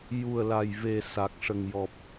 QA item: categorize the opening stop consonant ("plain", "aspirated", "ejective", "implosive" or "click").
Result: plain